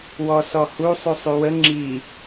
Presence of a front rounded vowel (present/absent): present